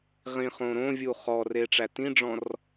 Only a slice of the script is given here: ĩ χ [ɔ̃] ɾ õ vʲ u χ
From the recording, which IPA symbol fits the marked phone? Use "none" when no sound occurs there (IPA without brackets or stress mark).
õ